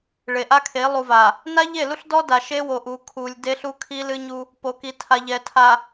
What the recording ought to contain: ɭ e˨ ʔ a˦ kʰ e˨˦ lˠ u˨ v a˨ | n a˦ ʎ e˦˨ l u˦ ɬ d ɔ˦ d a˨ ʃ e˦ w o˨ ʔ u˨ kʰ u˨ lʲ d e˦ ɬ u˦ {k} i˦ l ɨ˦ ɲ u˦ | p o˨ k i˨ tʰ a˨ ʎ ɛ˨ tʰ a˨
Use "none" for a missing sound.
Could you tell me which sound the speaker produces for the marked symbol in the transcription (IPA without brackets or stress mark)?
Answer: kʰ